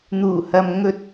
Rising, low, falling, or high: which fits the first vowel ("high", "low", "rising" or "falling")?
low